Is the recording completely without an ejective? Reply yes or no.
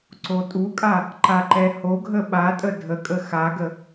no